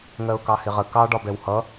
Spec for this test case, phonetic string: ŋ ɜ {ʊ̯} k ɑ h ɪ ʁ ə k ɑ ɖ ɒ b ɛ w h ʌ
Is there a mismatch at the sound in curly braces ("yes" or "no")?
no